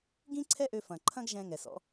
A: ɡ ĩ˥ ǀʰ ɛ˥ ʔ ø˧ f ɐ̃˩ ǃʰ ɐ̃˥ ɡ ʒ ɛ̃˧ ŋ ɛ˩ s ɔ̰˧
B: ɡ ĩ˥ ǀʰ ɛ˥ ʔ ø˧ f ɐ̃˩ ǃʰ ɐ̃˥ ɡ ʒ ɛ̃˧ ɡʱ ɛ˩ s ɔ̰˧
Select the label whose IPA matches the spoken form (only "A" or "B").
A